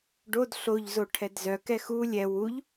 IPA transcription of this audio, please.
ɖ o d ɬ o ʎ z o ʈʰ ɛ d z œ k ɛ x u lʲ ɛ w u ʎ

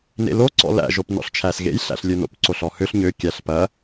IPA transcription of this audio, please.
n ḛ l o ǀ ɔ̰ l æ̰ ʒ o p n ɔ̰ ɬ t͡ʃʰ æ s ɣ ḛ j ɬ æ̰ ɬ lʲ ø n o̰ p ǀ o ɬ ɔ h ø ɬ ɲ ø kʲ æ ɬ p ɐ

